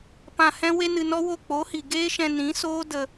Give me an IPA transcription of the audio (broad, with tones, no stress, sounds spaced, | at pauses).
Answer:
p ã˧ h ɛ̃˦ w e˦ n ɨ˧ n ɔ˦ w o˦˨ k͡p o˨˦ h i˨ ɡ eː˦ ʃ ɛ̃˧ n ĩ˨˦ s oː˦ d ə˧